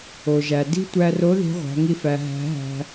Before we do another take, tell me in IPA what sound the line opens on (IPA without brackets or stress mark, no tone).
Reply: o